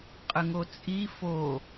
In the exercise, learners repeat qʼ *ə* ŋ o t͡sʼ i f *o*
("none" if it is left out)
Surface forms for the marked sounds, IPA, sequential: ə, o

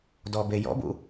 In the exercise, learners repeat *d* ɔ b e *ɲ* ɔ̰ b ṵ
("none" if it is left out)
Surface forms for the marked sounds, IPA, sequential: d, j

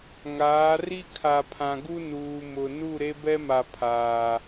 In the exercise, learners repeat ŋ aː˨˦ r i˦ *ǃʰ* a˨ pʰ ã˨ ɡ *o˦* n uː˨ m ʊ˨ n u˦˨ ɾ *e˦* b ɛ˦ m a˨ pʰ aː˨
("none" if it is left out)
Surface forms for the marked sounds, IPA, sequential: kʰ, u˦, e˦

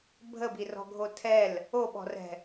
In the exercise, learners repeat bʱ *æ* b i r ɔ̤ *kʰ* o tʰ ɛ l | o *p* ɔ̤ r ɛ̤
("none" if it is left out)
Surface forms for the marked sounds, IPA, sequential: ə, ɡʱ, ɓ

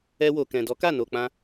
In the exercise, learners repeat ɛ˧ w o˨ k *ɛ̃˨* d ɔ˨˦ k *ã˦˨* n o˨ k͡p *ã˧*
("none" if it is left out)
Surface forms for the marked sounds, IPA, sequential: ɛ̃˨, a˦˨, ã˧

